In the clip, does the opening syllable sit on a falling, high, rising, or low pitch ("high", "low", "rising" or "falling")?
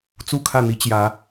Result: falling